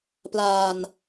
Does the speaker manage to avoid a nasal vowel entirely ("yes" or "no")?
yes